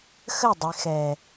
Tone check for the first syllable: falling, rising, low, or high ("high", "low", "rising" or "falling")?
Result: falling